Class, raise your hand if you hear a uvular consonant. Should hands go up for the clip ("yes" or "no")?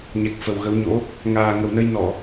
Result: no